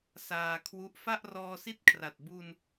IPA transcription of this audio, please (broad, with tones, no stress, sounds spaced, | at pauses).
s aː˧ kʰ w u˦˥ ʔ f a˥˩ ʔ r ɔː˧ s i˥˩ t̚ kʰ r a˨˩ t̚ b u˧ n